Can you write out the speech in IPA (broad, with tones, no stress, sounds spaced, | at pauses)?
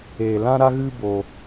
eː˧ l ã˦ ɾ a˦ ɣ ɨ˦ b o˦